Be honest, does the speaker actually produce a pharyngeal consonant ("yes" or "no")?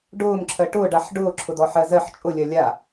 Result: yes